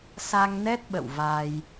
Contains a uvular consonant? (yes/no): no